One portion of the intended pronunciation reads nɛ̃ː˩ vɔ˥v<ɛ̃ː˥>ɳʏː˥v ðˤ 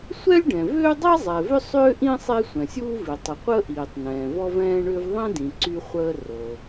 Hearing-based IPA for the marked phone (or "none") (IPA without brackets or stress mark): ɛ̃ː˥